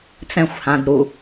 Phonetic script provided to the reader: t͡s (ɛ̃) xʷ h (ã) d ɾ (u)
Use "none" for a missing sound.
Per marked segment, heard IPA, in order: ɛ̃, ã, u

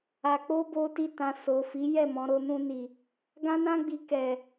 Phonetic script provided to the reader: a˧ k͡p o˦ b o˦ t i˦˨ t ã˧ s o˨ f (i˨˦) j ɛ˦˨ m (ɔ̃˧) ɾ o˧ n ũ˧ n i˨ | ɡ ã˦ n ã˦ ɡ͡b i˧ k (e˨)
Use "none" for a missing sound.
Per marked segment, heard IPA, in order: i˨˦, ɔ̃˧, ɛ˨

